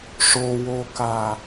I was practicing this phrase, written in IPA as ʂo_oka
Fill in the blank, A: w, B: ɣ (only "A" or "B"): A